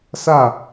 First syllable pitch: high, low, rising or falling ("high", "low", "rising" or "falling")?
falling